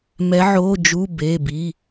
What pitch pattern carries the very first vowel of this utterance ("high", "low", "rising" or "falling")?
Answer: rising